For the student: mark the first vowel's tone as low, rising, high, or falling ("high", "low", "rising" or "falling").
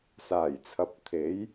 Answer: low